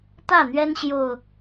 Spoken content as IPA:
t̪ ä˥˨ n̪ ɥ ɛ˦ n ɕ j o˨˩ ʊ̯

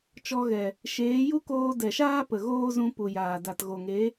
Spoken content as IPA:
t͡ʃ ɔ˧ ɣ ɛ˨ | ʃ eː˨˦ j u˦ k oː˧ d ɛ˨ ʃ aː˦ p ə˨ ɣ oː˦ z ũ˧ p u˨ j aː˨ d a˨ t ɣ o˨ ŋ e˨˦

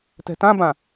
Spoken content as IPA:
t ɛ̤ t ã b ã

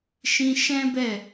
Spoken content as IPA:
ʃ ĩ˧ ʃ ɛ̃˦ b ɛ˦˨

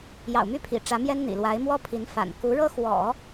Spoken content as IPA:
j ɑ̰˨˩ ʊ̯ m y˥˩ pʰ ḭ˨˩ ʈ͡ʂ ä˧˥ m j ɛ˥ n n̪ ḭ˨˩ l w a˧˥ ɪ̯ m w ɔ˥ pʰ i˧˥ n f a̰˨˩ n k u˧˥ ɻ ɤ˥ x w ɔ̰˨˩˦

